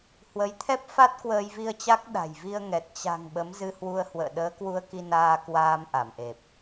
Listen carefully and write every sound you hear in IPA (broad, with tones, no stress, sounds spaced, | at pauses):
h w ə˨˦ j t̪ʰ ɛ˦˥ p̚ f a˦˥ t̚ k w əː˧ j v i˧ ə̯ t͡ɕ a˦˥ k̚ ɗ a̤˨˩ j v i˧ ə̯ ŋ ɛ˨˩ t̚ t͡ɕ a̤˨˩ ŋ ɓ ə˨˦ m z ɨ˧ h w u˧ ə̯ h w ə̰ː˧˨ ɗ əː˨˦ k w u˧ ə̯ k i˧ n aː˧ k w aː˧ m ʔ a˧˩ m ʔ e˨˩ p̚